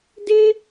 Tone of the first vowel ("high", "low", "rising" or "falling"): high